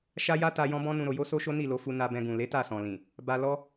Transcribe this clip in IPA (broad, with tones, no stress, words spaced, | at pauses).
ʃa˦ja˦ta˧ jɔ̃˦bɔ̃˦nũ˧ɾo˧ jo˦so˦ʃo˦ ni˦˨lo˧fu˧ na˧bɛ̃˧ɡũ˨ le˨˦ ta˦˨sɔ̃˨ lĩ˨ | ba˧lɔ˦